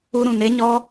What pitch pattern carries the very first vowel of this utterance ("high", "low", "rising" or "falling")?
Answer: high